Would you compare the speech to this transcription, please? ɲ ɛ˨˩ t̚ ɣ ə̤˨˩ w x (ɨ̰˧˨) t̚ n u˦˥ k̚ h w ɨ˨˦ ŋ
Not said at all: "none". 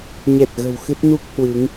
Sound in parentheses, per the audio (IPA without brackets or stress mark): ɨ˦˥